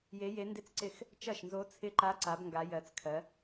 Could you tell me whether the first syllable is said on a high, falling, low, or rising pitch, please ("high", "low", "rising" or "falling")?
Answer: rising